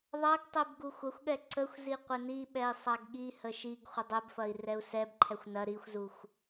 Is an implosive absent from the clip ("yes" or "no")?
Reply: no